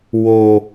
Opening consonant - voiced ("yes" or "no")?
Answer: yes